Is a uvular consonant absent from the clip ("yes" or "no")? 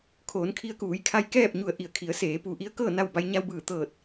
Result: yes